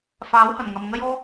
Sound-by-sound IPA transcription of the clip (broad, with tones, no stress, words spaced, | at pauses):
faː˨˥whɐ˨˩nŋɐ˨m ŋɐ˥jɔː˥